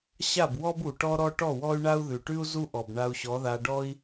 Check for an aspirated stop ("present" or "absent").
absent